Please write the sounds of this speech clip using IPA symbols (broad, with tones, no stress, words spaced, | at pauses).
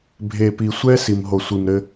bʱe˨pi˨ sʷɛ˦ si˨mɦo˨sʷi˨mɾɘ˦